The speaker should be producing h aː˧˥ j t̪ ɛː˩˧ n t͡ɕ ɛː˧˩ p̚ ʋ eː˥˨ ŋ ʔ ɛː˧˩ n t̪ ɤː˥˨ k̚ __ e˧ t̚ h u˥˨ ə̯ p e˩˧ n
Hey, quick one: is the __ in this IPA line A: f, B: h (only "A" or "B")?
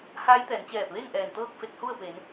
A